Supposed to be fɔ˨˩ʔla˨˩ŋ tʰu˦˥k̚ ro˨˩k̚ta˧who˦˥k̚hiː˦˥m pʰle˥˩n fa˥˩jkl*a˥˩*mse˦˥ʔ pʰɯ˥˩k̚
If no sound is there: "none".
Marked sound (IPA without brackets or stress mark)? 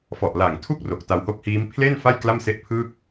a˥˩